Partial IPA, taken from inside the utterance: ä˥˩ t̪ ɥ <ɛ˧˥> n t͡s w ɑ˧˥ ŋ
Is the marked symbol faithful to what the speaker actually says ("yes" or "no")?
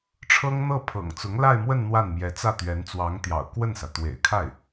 yes